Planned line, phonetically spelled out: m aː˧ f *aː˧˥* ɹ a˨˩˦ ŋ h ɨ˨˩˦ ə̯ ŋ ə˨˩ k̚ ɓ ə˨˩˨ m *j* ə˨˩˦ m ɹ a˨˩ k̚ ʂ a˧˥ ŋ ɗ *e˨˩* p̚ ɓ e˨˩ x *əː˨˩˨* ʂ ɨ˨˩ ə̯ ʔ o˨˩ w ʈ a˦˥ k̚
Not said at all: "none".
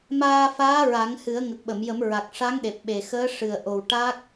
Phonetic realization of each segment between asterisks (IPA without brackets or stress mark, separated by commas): aː˧˥, j, e˨˩, əː˧˥